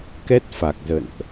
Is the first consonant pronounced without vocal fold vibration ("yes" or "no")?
yes